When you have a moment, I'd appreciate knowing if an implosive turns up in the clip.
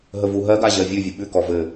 yes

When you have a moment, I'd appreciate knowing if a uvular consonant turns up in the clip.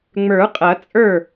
yes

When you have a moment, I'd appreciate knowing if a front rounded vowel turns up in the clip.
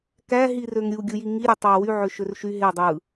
yes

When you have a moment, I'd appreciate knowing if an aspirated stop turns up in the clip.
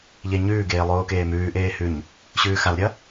no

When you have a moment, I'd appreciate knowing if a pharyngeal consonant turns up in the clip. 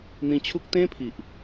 no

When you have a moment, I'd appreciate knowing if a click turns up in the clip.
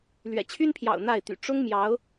no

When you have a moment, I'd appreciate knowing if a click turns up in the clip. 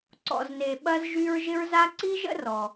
yes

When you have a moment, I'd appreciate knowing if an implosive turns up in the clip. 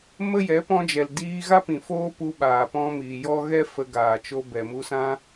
yes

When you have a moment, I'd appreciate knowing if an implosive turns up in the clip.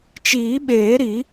yes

